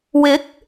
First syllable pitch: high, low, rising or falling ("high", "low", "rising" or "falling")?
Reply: rising